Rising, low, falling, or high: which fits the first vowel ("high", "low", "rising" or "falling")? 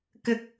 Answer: high